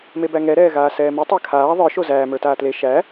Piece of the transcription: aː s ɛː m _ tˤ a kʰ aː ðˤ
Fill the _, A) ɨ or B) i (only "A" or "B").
A